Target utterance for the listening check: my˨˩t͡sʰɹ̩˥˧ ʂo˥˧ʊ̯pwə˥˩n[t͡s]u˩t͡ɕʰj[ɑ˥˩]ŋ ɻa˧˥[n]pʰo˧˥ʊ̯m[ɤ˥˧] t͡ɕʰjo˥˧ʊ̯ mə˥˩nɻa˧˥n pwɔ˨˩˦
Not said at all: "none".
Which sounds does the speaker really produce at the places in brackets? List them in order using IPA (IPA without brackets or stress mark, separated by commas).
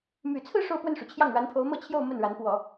ʂ, ɑ˥˩, n, ɤ˥˧